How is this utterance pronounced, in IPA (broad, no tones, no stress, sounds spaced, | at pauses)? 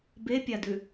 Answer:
b e pʲ a d ʉ